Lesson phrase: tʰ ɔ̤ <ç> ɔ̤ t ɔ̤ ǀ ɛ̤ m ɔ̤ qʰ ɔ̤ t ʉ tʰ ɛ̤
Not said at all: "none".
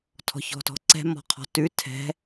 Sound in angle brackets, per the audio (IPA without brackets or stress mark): ç